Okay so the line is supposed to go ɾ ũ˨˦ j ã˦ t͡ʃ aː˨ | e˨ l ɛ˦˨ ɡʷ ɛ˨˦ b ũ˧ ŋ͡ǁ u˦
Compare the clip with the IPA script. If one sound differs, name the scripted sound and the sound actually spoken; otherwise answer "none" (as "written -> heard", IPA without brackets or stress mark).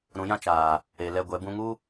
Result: ŋ͡ǁ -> ŋ